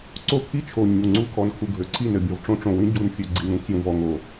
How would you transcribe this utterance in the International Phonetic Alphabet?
ǀ o˦ pʰ i˦ t͡ʃʰ o˨ ɲ u˨ ŋ͡ǀ u˦ kʰ ɔ˨ n kʰ u˨ ɡʱ ø˨ ǀʰ i˦˨ n ɘ˨ bʲ ɔ˨ v ʈ͡ʂ õ˦ ʈ͡ʂ õ˨ w ĩ˦ ɟ u˨ n fʲ ø˨ ɡ͡ǀ i˨ ŋ ɾ ũ˦ kʰ j ũ˨ v ɔ˨ ŋ o˨

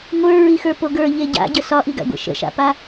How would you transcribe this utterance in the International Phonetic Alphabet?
ŋʷ ə˞ ɹ i x ə˞ p o ɡ ə˞ ʎ e ɟ a̰ ɟ ə s ɒ ʔ i ɡ a̰ ɡʷ ə̰ ʃ ə̰ ʃ a̰ p a

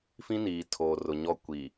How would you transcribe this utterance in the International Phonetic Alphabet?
f ĩ˦ n iː˨ tʰ oː˨ r ʊ˨ ɲ ɔ˦ kʷ i˨

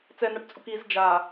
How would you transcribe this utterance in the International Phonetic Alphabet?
t͡s ɛ n a ʈ t͡sʼ u k i z d͡ʒ a

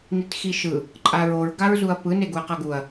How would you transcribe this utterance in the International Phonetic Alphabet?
n i t x i ʃ ɯ | ǃʼ a ɹ o ɹ ɡ a ɹ z u ɐ̯ p ɯ n e ɡ u ɐ̯ q ʌ ɡ u ɐ̯

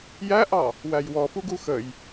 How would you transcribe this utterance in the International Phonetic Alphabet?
j æ ʔ ɑ | w æ j w ɔ f u ɡ u x ə j

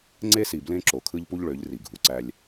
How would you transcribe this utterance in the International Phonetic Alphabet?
ŋ͡ǀ e˦ s i˨ b l ẽ˦ ǁ o˨ kʰ ɯ˦ ʎ p u˦ ʎ ɭ ø˨˦ ʎ r i˨ ɡʱ u˨ ǀ æ˦ lʲ

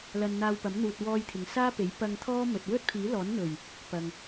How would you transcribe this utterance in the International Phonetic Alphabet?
l ɐ˧ n n̪ aː˧ w p ɐ˨˥ m n̪ uː˨ t̚ w ɔː˥ j t̪ʰ ɪ˨ ŋ s aː˥ p e˨˥ j p ɐ˧ ŋ t̪ʰ ɔː˥ m ɵ˨ t̚ w ɵ˥ t̚ pʰ iː˨˥ l ɔː˨˥ n n̪ ɵ˨˩ ɥ | p ɐ˨ ŋ

